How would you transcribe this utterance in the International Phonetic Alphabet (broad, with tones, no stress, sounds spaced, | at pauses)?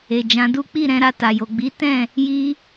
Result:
e˨ d͡ʒ ã˨˦ d u˦ k͡p i˦˨ ɾ ɛ̃˧ ɾ a˧ t a˨ j o˨ ɡ͡b i˨˦ t ɛ̃˦˨ | j i˦